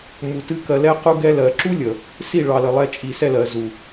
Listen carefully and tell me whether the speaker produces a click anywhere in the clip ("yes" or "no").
yes